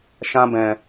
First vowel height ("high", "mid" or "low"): low